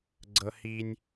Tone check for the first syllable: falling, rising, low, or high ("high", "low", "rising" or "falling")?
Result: high